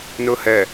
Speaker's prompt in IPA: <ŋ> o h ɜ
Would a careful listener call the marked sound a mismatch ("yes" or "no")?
yes